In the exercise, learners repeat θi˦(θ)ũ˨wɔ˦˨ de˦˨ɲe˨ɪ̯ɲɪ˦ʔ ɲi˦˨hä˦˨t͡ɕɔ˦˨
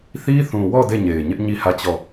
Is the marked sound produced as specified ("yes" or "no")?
yes